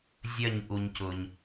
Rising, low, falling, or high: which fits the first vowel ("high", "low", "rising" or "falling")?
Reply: falling